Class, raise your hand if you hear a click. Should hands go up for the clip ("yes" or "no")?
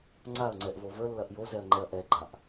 yes